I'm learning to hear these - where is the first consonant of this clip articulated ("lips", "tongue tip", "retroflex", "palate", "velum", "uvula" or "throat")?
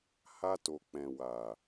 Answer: throat